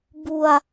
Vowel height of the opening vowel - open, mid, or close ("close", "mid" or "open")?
close